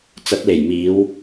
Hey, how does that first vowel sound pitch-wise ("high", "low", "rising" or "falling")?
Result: rising